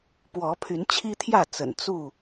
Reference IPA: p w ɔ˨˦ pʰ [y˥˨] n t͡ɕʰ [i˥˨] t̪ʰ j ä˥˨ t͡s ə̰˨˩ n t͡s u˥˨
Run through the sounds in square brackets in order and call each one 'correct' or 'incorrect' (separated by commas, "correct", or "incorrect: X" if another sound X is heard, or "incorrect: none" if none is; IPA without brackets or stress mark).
incorrect: y˨˦, incorrect: i˦